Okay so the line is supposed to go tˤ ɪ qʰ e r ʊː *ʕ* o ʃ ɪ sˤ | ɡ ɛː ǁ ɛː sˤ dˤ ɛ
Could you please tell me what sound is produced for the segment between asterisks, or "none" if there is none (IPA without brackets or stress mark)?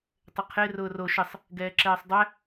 r